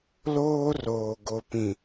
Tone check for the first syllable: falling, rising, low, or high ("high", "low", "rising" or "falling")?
high